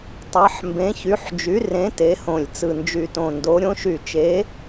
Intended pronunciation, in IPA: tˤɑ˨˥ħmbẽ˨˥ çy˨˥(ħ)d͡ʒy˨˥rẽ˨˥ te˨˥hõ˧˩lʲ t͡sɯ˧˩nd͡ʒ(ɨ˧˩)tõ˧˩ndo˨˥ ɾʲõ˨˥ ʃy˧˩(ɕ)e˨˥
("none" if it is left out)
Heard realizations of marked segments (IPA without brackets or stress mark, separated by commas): ħ, y˧˩, t͡ʃ